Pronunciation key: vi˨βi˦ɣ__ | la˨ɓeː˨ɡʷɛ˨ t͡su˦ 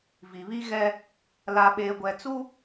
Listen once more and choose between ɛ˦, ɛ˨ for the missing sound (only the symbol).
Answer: ɛ˦